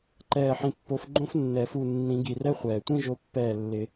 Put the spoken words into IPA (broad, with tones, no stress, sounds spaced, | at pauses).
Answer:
ǃ ɛː˧˩ ħ ĩ˧˩ pː o˨˦ f ɡ͡ǃ õ˥ f nː ɛ˨˩˦ f u˧˩ nː ĩ˨˩˦ ɡ i˩ r ɛ˥ χʷ ɛː˩ tʷ ĩ˥˧ ʒ o˨˦ pː ɛː˧˩ lː ɪ˨˩˦